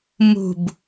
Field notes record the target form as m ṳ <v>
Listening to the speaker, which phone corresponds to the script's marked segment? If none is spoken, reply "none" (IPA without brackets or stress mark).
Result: b